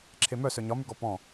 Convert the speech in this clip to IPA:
ǁʰemœ sœɲɒmʉɡɔ pɔ̃

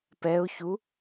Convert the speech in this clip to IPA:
pɛʊ̯çu

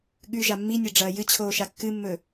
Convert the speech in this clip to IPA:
ɠʉ ʒamːinʲɐ ɖ͡ʐɐːjɨt͡ɕʰoː ʃakːɨmːɵ

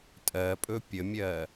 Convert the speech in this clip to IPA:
tʼɜpʼɵ pʲəmʲɜ

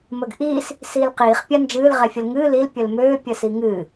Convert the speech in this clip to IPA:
məɡʔiːs | siːlqiːχ pʲand͡ʒɨːl ʁɛfʲəlŋɨː lil pʲəlmøː pʲəsiŋɨː

